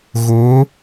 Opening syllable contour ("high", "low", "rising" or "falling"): rising